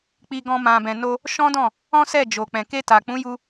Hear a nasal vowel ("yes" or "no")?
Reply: yes